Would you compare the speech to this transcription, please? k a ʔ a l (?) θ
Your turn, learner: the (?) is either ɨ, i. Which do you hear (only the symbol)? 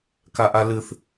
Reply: ɨ